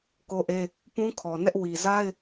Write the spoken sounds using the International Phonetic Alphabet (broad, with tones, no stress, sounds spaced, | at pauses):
k o˦ ʔ e˦ | p ũ˦ kʰ ɔ˨ n ɛ˦ ʔ w i˨ z a˦ ɪ̯